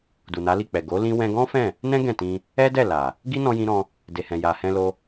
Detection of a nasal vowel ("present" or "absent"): present